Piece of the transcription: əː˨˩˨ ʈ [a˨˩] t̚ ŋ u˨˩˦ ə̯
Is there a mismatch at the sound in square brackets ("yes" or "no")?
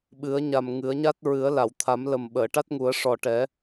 yes